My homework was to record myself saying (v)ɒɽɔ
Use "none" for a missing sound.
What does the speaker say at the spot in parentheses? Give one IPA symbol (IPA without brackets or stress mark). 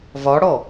v